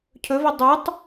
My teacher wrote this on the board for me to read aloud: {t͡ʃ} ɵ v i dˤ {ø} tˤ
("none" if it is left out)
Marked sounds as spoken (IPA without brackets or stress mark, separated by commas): cʰ, u